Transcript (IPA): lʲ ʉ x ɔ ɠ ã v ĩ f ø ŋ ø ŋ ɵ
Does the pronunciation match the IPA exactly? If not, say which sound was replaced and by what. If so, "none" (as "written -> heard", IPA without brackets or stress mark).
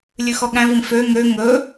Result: ã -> æ̃